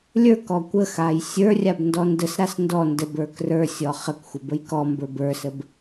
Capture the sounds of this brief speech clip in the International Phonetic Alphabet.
lʲ ə˞ k ɔ kʷ ə x a j sʲ ə˞ rʲ a b n d ɔ n d ə s ɾ a s n d ɔ n d ə b ə˞ k r ə˞ sʲ ɔ χ ə k xʷ ə b ə j k ɔ m b ə˞ b ə˞ s ə b

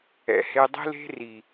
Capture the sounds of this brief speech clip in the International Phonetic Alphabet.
ɛ̰˨ h e˧ dˤ i̤˦ l e̤˦ r i˨

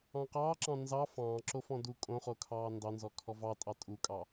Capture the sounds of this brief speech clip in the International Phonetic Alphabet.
ɑ̃ q ɑː ǁ ɑ̃ n z ɑ f ɑ̃ː ǁ o f ɔ̃ d u kʼ õ χ o kʰ ɑː n d ɑ n z ɔ kʰ ɔ v ɑ tʼ ɑ tʼ u kʼ ɑ

